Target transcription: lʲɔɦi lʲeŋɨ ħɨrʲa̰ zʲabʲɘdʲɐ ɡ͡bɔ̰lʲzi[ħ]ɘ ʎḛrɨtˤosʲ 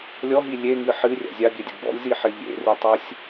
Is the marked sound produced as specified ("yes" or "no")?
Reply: yes